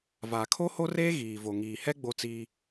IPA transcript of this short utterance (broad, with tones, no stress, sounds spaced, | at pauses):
v a˨ kʰ o˦ h o˦ r eː˦ ɣ iː˨ v o˨ ŋ iː˨ h ɛ˦ ɡ͡b o˦ t͡s iː˦